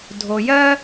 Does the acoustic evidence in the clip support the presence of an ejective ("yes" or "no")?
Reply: no